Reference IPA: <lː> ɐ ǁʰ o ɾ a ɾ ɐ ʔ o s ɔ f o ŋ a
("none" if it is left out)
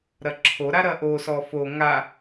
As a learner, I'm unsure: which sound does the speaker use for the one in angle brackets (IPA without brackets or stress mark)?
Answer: ɾ